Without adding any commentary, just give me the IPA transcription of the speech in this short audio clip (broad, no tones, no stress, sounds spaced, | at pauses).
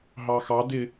ɦ ɑ x ɑ d ɪ